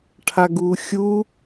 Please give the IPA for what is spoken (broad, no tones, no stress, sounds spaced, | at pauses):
ʈʰ a ɡ uː xʲ u